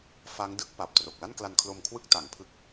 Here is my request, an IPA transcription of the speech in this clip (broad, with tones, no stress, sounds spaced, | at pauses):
f a˦˥ ŋ d ɯ˥˩ k̚ p a˨˩ p̚ t r o˨˩ k̚ l a˥˩ n k l a˧ n kʰ l o˧ m kʰ w ɯ˥˩ k̚ t a˨˩ ŋ pʰ ɯ˦˥ k̚